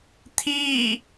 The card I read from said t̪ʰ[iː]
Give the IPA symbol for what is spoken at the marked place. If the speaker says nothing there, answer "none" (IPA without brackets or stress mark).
iː